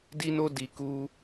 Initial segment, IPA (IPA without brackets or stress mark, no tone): d